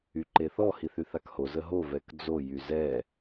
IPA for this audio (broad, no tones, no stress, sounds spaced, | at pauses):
y ǃ e θ ɔ h i θ y θ a k h o z ə ɦ o v ɛ k d͡z o j y z ɛ